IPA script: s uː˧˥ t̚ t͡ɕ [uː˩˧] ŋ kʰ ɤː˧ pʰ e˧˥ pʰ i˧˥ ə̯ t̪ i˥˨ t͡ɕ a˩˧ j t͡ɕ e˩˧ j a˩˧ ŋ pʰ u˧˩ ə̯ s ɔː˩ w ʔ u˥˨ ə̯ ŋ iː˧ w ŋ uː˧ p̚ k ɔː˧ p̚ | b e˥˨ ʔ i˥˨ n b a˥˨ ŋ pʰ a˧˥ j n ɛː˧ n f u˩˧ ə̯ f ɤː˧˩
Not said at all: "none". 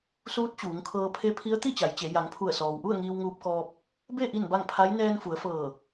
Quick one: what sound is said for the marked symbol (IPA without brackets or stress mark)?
uː˩˧